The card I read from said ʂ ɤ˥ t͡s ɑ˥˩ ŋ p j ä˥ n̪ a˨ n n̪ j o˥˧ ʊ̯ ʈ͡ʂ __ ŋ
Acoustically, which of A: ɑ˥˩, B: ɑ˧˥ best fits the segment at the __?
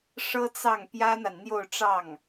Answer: A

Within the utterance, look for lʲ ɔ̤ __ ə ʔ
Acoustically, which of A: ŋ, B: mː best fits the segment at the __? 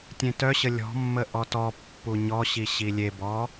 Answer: B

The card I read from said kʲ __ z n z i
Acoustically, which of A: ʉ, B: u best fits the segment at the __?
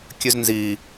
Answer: A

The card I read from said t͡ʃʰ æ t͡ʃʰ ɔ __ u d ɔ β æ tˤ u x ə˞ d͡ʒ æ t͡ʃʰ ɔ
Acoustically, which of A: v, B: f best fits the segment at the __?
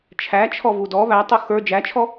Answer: A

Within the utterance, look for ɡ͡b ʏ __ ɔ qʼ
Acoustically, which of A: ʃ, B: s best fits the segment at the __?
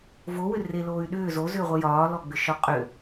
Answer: A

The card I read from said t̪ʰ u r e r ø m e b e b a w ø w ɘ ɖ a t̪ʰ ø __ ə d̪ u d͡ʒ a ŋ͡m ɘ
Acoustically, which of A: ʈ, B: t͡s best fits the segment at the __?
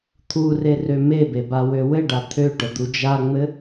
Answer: A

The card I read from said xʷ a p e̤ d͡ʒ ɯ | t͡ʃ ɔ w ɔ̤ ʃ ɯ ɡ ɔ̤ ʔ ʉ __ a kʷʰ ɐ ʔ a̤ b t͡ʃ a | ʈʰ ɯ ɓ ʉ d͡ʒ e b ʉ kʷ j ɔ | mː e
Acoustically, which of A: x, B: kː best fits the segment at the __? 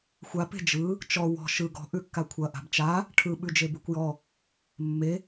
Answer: B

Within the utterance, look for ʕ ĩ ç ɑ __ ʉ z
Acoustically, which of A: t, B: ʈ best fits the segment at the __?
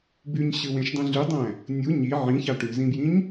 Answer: B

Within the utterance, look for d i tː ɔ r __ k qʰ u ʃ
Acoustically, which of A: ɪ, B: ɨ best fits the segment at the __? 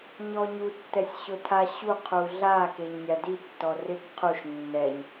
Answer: A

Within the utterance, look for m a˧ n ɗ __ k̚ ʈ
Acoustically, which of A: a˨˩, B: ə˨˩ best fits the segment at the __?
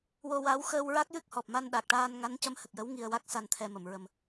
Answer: A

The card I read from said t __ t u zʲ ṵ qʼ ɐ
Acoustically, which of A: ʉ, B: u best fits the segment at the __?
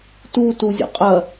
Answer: B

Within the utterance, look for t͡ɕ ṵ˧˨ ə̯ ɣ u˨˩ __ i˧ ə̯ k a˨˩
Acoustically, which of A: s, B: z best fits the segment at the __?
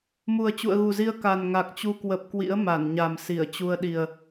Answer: B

